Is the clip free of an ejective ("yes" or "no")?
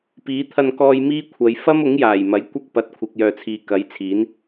yes